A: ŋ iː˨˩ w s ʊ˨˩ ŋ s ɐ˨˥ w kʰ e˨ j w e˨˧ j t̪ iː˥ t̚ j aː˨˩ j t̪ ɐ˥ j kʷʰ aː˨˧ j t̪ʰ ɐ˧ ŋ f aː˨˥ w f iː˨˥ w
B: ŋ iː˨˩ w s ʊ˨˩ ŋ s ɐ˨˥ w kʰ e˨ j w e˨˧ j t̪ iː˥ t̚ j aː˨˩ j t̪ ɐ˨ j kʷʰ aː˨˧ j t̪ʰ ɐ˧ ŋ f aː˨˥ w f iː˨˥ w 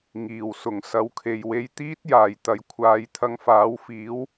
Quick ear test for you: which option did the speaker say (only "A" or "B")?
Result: B